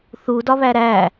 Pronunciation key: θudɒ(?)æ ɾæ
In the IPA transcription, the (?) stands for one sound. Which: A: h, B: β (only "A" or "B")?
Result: B